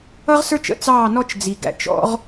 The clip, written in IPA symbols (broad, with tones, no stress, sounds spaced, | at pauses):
ʌ˦ ʁ s ə˞˦ t͡ʃ ə̰˦ t͡s ɑː˦˨ n ɔ˦ t͡ʃ d͡z i˨ ɡ æ̰˨ t͡ʃ ɔ̰˧ ʁ